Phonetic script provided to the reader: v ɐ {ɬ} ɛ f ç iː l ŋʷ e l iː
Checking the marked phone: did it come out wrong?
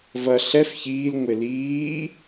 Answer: no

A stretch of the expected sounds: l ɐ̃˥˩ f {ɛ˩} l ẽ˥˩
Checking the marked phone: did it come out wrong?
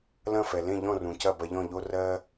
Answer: no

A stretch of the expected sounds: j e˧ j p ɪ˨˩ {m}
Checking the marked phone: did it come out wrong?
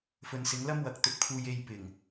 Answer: yes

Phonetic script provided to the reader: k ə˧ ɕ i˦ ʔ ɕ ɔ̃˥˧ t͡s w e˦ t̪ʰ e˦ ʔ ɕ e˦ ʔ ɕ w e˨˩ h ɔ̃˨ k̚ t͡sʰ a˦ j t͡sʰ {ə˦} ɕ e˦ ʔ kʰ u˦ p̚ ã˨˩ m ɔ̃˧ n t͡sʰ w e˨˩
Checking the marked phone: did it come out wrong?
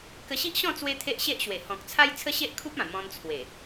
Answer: no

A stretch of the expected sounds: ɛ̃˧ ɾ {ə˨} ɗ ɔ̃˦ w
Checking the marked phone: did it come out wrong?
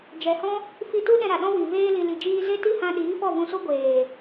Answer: yes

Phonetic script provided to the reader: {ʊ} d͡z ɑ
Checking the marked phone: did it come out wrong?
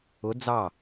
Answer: no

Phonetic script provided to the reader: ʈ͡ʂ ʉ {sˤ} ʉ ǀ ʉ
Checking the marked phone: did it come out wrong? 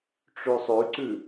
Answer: no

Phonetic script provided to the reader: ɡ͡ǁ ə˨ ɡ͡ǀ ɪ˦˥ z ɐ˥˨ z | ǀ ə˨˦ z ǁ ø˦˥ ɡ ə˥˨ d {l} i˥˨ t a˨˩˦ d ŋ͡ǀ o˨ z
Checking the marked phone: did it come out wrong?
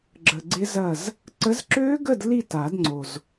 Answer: no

